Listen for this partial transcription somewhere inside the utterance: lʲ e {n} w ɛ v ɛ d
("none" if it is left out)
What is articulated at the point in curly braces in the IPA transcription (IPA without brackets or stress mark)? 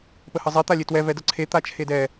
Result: t